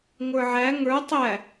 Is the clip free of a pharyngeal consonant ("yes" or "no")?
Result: no